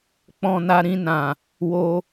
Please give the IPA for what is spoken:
k͡pɔ̃˧na˧ ɾĩ˧nã˨ | wo˧

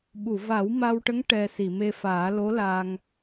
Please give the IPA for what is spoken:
ɓu˨˩˨va˨˩˦w ma˧wʈə˧˥ŋ ʈɛ˧ si˨˩˨me˧faː˨˩˦ lo˧˥la˧ŋ

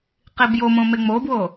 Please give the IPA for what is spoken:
qibjomõ meŋ͡mobwo

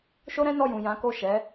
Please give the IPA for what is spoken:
ʃo˦ɾɛ̃˦nɔ˦˨jũ˨ jã˨˦ ko˦˨ʃɛ˨˦

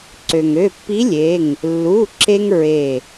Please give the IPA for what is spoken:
ǀø˩ŋø˩˧˩pːi˧˥lʲe˩˧˩ŋ | lːu˩˧˩ǁe˧ŋ ɹe˧˩

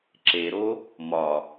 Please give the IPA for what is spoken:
ǁeɾo | mɒ

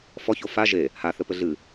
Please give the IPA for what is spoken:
fɔço fa ʒe | haθɘpɘ ɮɨ

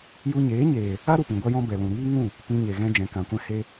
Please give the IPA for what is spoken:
ju˧ɲeː˨˦ɲeː˨ | a˦ ɾu˨pĩ˨ɡʷa˧ jɔ̃˧ bɛ˨lũ˨ɾiː˦ ŋũ˦˨ | pĩ˧ɲe˨ɣɛ̃˧ d͡ʒɛ̃˨kã˨kʷɛ̃˧ he˧

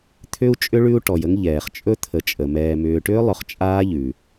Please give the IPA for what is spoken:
t̪ʰʏ˥u̯t͡ʃʼʏ˥ ɭʉ˥u̯ʈɔ˨jə˥ŋ ʎɛː˩χt͡ʃʼɵ˥ t̪ʰə˨t͡ʃʼə˩mɛː˨ mʏː˨ʈʏː˥lˠɵ˨χ t͡ʃʼaː˥ʎʉ˩

